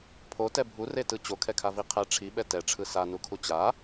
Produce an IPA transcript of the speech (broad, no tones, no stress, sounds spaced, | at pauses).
pʰ o t ɛ bʱ u r e t ɯ t͡ɕ o kʰ ɛ kʰ a v i qʰ ɛ ʈ͡ʂʰ i ɓ ɛ t ɛ ʈ͡ʂʰ ɯ s a n u kʰ u t͡ɕ a